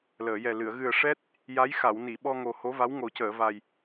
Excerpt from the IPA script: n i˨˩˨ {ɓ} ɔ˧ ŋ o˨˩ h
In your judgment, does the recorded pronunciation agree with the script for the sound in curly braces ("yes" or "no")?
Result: yes